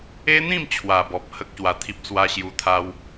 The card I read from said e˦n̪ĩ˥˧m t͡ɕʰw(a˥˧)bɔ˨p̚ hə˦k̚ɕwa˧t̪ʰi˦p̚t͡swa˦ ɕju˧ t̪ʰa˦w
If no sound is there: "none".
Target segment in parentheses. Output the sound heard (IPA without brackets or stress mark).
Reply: a˨˩